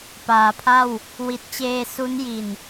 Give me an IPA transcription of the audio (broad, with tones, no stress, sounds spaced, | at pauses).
p aː˩˦ pʰ a˥˩ w | w i˨˩ t̚ t͡ɕ eː˧ s u˦˥ n j i˨˩ n